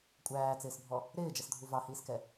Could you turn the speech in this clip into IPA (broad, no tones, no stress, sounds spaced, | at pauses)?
kʷʼ æː t͡s ɪː s bʱ ɔ | ɾ ɪː d͡ʒ ʌ s dʱ u v ɑ h iː s k ɛ